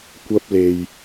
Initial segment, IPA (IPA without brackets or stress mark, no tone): kʷ